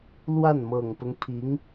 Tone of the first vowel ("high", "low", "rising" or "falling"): falling